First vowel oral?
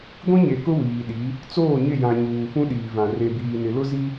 no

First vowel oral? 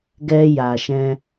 yes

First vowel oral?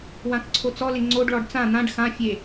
no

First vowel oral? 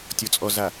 yes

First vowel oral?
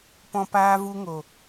no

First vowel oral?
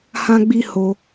no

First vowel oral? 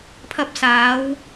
yes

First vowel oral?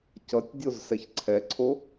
yes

